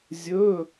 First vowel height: mid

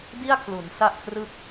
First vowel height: high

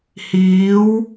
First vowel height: high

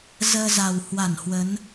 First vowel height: mid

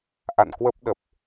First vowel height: low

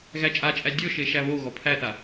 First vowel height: low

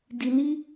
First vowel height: high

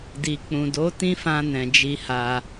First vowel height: high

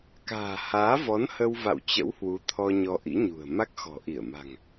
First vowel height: low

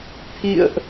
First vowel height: high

